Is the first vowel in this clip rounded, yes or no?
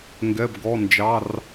no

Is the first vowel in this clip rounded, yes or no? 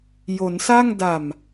yes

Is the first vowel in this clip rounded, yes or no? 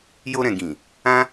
yes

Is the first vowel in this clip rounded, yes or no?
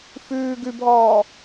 yes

